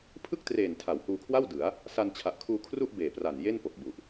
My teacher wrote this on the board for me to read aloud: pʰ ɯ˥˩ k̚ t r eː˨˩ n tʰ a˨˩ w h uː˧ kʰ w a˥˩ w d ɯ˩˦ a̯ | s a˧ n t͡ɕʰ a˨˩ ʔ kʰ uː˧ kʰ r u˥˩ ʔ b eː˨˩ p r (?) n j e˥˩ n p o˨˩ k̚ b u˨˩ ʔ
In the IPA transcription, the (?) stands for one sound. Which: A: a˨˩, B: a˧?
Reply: A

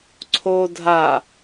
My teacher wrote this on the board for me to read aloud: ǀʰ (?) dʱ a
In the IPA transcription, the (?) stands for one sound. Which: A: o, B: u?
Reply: A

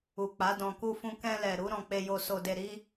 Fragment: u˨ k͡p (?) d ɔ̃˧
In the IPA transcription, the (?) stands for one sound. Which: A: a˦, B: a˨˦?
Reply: B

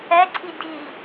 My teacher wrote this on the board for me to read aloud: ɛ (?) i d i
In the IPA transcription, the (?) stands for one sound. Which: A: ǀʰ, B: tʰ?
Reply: A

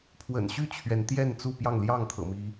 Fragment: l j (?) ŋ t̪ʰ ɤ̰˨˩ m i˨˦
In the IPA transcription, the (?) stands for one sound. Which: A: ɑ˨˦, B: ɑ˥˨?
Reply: B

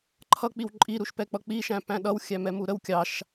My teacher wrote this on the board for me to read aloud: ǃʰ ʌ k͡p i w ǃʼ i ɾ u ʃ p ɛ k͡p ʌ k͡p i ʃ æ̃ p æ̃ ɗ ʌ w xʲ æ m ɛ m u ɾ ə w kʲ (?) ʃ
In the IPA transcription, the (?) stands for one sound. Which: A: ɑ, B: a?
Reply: A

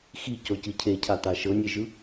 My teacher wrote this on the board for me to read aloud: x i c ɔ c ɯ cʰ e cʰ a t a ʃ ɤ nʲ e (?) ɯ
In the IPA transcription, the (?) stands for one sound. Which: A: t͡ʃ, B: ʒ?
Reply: B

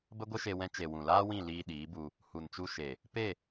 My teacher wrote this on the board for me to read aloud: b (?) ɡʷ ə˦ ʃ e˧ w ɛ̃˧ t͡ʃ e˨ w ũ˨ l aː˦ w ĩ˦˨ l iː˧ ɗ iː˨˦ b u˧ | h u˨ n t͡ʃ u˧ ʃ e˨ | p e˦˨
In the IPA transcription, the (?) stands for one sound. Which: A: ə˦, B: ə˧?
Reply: A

